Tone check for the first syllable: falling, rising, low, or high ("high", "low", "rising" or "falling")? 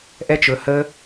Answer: high